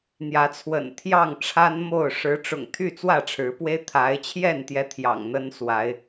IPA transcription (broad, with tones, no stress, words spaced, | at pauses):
n̪jä˨˦t͡sʰwə̰˨˩n t̪ʰjɑ˥˨ŋʈ͡ʂʰa˦n mo˥˨ʊ̯ ʂɻ̩˨˦ʈ͡ʂʊ̰˨˩ŋ t̪ʰy˥˨t͡swä˥˨ʈ͡ʂʰɻ̩˨˦pwe˦ɪ̯ t̪ʰa˨˦ɪ̯t͡ɕʰjɛ˥˨n t̪jɛ˦t̪ʰjɑ̰˨˩ŋn̪ə˦nswa˨˦ɪ̯